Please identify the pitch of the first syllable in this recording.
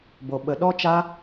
low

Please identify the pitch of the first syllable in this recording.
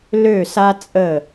falling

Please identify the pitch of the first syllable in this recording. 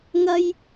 high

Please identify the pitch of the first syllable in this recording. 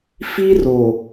high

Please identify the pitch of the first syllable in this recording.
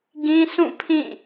high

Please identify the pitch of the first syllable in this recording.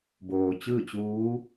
low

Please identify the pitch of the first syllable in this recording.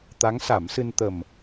rising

